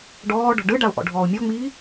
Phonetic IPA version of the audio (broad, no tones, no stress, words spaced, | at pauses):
ɖɔːɖɔ̤ ɖɯɖaʊ̯ ʔɔ̰ɖʱɔːʊ̯mʲɔŋ͡miː